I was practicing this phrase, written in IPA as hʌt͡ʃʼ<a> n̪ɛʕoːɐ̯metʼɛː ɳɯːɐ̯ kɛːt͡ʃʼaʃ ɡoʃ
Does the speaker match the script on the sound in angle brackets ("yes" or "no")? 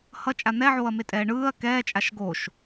yes